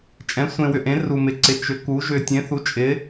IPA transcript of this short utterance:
t͡ʃʼ ɛ̃˨˥ sʷ ẽ˧ w ʏ˧ ʔ ẽ˨˥ r u˧ m ɪ˨˥ ǀ ɪ˨˥ t͡ʃ ʏ˨˥ k u˨˥ ʒ ʏ˧ tʲ ẽ˨˥ θ u˨˥ t͡ʃʼ ɪ˨˥

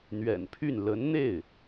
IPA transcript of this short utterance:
n̪ ɥ ɛ̰˨˩ n pʰ y˥˩ n l ə˧˥ n n̪ e˥˩ ɪ̯

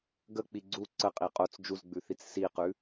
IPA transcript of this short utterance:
ɡ ə k͡p i ɡ͡ǀ u ǀ ə qʼ i qʼ o t͡s d͡ʒ u z ɡ͡b ʉ θ i t͡s s i q ʉ

